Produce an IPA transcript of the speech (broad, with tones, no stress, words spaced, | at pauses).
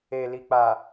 e˨ li˨ k͡pa˨